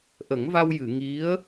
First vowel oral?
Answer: yes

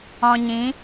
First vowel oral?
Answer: no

